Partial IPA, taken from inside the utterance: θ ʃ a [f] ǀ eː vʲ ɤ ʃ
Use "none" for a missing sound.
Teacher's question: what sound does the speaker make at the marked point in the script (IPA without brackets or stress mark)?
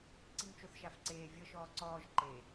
f